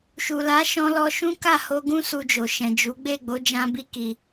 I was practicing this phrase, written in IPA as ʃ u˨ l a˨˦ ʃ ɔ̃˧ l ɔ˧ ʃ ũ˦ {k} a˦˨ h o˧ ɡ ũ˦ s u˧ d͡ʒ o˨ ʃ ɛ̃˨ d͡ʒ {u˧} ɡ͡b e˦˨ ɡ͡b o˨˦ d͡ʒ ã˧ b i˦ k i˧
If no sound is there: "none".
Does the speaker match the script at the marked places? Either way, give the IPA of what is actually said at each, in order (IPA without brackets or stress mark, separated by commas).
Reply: k, u˨˦